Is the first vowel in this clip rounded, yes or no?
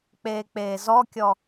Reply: no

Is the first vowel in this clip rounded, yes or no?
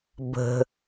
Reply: no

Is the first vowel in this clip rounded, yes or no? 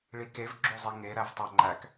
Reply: no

